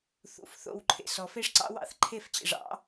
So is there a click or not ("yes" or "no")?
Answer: yes